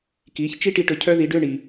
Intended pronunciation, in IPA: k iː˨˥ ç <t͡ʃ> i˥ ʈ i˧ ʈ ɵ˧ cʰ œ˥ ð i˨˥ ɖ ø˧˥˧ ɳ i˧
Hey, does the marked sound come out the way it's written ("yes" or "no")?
yes